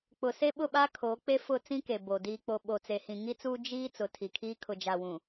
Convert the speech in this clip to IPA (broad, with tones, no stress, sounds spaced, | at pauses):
k͡p ʊ˨ s e˦ ɓ ʊ˦˨ ɓ aː˦ kʰ o˨˦ k͡p e˦ f ʊ˦˨ t͡s ĩ˦ k e˨ b o˨ d iː˨ k͡p o˨ ɓ o˨ t͡s e˨ h ĩ˨ ŋ i˦ t͡s uː˦ d͡ʒ iː˦ t͡s ʊ˨˦ tʰ i˨ kʰ iː˦ kʰ ʊ˨ d͡ʒ a˨ w ũ˨